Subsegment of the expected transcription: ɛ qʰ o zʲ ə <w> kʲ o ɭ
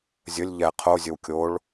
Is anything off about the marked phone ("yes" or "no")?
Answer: no